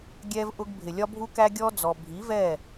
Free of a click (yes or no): yes